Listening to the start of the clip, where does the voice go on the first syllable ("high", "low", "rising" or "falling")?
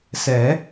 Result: rising